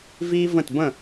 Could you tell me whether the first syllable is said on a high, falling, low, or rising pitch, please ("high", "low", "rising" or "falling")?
high